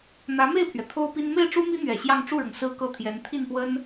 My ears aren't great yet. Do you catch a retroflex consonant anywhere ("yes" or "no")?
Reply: yes